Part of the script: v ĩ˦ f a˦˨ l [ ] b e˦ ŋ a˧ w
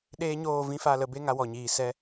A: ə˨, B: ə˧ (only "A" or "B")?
B